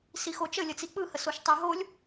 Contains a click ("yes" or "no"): no